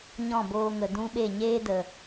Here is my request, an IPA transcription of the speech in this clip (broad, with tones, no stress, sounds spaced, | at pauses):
ɲ ɔ̃˦˨ b oː˧ ŋ ə˨ d ũ˦ ɓ e˦˨ ɲ eː˦ d ə˨